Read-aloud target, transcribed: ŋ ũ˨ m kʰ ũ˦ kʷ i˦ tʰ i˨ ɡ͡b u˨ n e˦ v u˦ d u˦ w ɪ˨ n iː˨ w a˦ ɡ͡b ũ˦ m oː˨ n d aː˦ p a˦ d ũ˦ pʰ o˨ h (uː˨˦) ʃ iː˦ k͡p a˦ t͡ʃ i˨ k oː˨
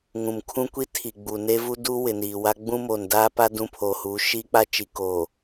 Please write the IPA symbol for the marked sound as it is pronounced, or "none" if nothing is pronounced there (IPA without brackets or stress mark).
uː˨˦